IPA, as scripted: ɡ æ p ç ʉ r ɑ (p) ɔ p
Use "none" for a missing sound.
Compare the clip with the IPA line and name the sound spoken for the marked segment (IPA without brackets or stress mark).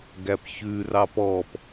p